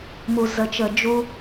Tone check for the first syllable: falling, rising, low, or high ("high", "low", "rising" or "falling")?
low